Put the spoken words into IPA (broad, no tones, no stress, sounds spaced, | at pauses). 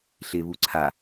ɬ ɪ β u ǀʰ a